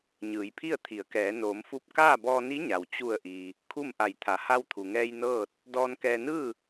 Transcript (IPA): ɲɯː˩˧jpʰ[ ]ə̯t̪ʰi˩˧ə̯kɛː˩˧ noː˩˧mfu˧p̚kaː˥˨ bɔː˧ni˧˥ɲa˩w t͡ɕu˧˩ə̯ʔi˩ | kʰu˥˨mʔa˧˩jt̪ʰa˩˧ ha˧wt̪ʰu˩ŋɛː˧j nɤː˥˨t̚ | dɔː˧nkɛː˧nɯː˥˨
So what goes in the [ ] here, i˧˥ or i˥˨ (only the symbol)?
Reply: i˥˨